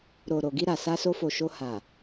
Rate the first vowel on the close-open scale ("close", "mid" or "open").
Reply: mid